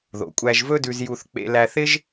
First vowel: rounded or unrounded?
rounded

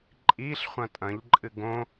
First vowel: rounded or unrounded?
unrounded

